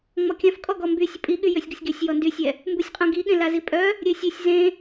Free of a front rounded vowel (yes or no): no